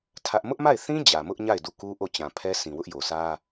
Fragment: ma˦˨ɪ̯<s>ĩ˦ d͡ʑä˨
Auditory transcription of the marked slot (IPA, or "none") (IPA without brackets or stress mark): θ